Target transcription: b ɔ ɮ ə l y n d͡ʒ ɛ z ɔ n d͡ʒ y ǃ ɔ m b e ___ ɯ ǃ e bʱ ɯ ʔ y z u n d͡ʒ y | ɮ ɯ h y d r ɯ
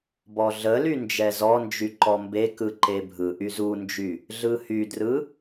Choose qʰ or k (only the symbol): k